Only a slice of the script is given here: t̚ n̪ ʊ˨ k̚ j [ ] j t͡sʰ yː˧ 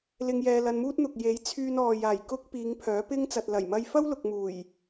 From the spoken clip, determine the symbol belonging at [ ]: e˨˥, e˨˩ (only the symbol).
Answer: e˨˥